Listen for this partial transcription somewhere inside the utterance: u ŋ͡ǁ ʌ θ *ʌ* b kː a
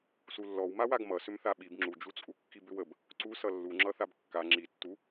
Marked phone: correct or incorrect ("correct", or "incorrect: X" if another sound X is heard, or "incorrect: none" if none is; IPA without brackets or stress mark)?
incorrect: a